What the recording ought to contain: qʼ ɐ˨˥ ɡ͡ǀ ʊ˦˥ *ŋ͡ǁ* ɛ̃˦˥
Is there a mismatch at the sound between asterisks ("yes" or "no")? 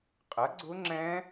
no